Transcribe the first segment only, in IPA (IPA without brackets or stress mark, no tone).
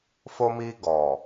f